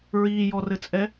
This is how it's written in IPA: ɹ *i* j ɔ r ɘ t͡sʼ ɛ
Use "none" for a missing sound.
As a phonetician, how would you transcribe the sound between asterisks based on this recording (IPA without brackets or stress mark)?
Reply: iː